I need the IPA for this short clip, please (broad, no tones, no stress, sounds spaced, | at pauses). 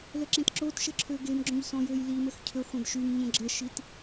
l ə ǁ ẽ t ǁ o t ʃ ə ǁʰ ø ɡ e m ɡ͡ǁ õ ʎ s ɔ̃ j ø j l i m ə x cʰ ø χʷ ə̃ d ʃ y m ɲ ə̃ ɡ͡ǁ ə ʃ i t